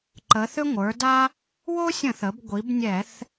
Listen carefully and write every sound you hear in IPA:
ǃ ə˩˧ θ ʏ˦ ŋʷ ə˞˩˧ d a˦ | w o˦ sʲ ə̃˧˩˧ θ ə˩˧ b ɡʷ i˩˧ b nʲ ɛ˧˩˧ θ

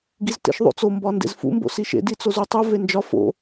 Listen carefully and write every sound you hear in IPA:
ɡ i z t ḛ ʃ ðˤ o̰ t͡s o m b ɒ n d ḛ z f ṵ m b o̰ s i ʃ ḛ d i t͡s o z u tˤ u v e n d͡ʒ ɒ f o̰

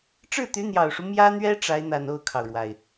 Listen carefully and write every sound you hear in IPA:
ʈ͡ʂ ɻ̩˥˩ t̪ y˧˥ n̪ j ɑ˨˩ ʊ̯ ʂ u˦ m j ä˥ n̪ ɥ ɛ˥ ʈ͡ʂ a˧˥ ɪ̯ n̪ a˨˩ n o˥˩ ʊ̯ kʰ ɑ˩ ʊ̯ ɻ w a˩ ɪ̯

